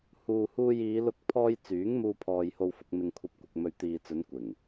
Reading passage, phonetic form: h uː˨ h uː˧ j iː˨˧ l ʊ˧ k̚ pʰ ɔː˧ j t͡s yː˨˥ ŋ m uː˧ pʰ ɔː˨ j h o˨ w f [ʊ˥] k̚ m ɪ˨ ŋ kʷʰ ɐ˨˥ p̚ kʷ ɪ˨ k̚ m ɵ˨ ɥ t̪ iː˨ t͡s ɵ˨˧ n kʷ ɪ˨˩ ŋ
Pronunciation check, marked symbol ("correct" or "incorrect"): incorrect